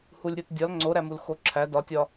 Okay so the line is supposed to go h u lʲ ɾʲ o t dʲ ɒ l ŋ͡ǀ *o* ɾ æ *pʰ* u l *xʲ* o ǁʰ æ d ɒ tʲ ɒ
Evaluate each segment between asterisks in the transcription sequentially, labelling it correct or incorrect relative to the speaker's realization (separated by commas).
correct, incorrect, incorrect